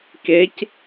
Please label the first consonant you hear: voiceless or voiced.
voiceless